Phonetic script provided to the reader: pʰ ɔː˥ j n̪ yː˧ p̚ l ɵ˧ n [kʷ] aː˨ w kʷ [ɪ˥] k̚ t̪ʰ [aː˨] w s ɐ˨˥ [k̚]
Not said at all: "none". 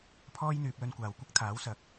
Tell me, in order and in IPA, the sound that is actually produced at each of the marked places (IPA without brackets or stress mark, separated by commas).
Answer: kʷ, ɪ˥, aː˨˥, k̚